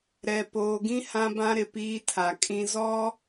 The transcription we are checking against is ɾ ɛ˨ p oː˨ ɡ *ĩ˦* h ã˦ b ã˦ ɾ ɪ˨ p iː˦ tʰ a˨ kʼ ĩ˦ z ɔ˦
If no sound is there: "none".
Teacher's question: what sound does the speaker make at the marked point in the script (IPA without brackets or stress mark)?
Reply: ĩ˦